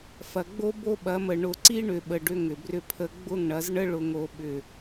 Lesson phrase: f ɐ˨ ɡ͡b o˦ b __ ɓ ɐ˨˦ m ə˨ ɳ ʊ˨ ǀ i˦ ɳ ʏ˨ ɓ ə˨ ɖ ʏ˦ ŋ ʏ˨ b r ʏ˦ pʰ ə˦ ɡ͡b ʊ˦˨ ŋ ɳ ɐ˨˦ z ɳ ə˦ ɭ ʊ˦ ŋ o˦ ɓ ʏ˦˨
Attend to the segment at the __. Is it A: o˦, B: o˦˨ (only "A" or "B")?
A